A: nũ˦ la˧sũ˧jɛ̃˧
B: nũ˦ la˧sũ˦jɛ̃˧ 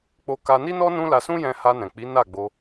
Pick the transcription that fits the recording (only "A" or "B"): B